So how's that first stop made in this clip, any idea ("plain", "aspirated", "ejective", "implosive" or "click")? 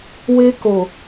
plain